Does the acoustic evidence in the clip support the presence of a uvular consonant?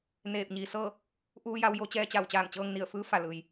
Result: no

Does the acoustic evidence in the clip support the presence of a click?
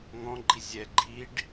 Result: yes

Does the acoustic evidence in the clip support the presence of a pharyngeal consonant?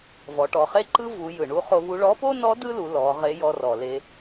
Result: no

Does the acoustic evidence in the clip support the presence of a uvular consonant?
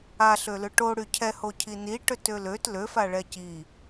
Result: no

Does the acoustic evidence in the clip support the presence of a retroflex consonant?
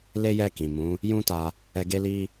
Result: no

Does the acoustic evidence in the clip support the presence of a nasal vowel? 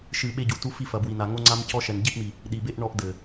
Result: no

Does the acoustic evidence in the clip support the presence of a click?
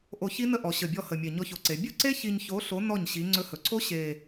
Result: yes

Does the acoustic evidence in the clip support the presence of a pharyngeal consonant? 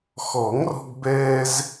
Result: no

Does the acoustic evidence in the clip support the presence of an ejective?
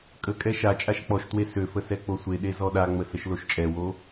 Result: yes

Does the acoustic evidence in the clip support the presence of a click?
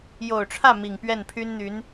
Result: no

